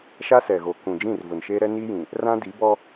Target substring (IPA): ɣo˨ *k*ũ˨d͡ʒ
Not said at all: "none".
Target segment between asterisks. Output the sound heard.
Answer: k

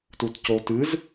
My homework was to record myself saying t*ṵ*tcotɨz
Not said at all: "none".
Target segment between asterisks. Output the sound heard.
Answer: u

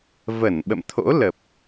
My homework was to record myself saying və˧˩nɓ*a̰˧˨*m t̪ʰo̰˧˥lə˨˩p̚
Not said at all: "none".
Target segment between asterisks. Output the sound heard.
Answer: ə̰˧˨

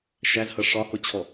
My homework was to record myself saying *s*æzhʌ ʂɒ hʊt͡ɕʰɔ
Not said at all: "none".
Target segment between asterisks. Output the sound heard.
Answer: ʃ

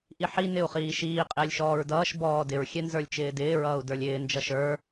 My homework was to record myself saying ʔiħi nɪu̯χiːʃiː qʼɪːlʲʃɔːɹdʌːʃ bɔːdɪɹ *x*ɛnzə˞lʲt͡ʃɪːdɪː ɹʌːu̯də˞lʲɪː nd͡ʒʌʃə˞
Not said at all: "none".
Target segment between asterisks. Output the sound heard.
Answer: xʲ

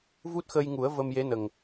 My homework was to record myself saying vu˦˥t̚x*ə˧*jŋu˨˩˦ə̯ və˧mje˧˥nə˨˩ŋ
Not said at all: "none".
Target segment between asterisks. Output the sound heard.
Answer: ə˧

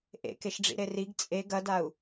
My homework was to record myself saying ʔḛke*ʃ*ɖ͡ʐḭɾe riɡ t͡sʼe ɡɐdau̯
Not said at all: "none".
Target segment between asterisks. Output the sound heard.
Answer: ʃ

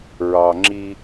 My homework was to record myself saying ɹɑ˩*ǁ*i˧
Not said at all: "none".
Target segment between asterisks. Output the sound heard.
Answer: ŋ͡ǁ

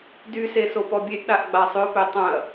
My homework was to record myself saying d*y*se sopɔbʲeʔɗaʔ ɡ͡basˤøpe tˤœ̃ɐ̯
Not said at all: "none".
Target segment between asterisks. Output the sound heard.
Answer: y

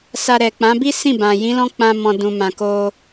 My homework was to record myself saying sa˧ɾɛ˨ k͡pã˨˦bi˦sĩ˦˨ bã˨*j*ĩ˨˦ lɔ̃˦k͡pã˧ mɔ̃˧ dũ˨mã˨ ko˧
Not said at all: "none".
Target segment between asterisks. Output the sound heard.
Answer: j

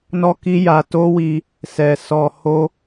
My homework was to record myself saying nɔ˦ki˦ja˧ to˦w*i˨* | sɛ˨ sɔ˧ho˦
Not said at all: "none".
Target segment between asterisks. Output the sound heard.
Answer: i˧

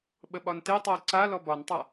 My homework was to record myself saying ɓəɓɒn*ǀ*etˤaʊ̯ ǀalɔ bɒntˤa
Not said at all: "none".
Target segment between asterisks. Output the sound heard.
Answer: t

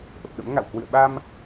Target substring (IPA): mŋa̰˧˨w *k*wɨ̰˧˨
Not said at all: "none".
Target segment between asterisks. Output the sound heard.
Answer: k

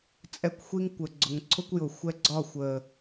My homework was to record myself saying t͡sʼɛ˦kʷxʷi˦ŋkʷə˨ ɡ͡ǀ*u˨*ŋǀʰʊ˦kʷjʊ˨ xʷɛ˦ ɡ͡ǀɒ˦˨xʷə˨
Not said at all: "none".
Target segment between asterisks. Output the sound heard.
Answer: ʊ˨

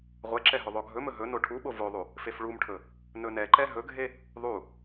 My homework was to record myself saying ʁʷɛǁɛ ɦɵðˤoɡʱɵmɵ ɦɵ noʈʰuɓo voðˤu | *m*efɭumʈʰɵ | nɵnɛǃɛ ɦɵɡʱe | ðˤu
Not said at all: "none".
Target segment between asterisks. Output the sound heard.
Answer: f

